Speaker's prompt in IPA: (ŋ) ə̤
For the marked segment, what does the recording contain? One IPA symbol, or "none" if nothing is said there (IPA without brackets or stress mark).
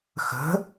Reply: x